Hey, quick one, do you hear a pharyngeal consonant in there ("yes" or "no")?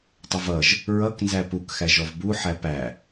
yes